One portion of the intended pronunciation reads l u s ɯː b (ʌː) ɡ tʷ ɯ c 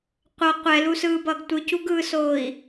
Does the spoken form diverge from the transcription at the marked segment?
no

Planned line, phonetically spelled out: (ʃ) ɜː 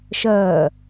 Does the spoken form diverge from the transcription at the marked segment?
no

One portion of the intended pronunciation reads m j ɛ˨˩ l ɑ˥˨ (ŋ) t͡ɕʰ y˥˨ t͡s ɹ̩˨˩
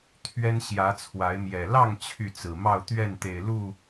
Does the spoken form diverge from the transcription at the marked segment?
no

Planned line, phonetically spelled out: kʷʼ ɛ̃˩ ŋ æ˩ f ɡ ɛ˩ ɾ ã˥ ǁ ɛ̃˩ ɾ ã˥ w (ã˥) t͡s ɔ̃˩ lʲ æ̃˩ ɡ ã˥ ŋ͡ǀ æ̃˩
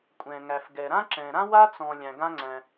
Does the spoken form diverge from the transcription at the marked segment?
yes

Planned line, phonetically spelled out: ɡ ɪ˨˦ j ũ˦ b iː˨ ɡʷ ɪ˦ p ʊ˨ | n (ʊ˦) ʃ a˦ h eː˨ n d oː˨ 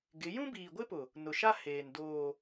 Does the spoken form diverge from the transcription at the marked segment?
yes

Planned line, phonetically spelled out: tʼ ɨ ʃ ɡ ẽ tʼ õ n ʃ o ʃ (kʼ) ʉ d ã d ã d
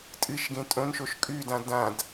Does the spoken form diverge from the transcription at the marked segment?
no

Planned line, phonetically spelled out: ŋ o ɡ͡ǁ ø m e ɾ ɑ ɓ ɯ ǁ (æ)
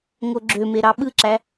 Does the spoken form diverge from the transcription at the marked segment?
no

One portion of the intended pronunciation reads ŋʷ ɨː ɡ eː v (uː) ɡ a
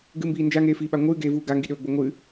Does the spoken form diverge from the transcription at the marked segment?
no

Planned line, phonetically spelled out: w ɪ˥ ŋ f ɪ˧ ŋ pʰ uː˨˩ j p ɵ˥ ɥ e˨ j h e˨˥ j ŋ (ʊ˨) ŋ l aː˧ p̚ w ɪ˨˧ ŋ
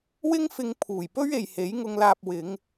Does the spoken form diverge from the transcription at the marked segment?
yes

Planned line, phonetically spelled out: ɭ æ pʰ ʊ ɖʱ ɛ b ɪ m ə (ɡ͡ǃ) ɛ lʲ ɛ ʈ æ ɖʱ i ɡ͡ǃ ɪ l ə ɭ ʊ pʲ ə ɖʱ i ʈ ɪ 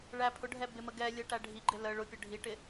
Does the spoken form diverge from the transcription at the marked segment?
yes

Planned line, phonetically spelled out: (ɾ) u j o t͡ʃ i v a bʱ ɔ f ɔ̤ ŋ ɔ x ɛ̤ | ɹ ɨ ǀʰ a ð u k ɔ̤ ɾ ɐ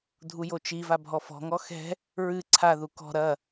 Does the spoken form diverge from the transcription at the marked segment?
yes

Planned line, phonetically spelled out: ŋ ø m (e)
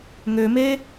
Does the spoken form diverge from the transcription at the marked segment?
no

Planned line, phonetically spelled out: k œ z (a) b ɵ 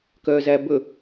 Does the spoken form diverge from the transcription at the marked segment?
yes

